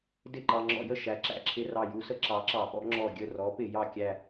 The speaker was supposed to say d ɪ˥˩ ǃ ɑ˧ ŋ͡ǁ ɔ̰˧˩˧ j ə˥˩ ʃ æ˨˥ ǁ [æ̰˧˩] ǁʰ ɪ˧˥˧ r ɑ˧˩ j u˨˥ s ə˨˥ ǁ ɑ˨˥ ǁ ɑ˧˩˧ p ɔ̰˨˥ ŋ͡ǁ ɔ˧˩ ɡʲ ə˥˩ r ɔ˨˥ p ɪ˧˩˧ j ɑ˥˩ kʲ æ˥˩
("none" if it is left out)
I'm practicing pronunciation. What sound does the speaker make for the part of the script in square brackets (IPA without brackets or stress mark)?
æ̰˧˩